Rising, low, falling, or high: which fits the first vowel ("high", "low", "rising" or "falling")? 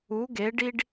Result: rising